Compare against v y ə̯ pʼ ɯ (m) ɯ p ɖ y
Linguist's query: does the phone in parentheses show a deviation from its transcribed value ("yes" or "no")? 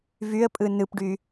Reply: yes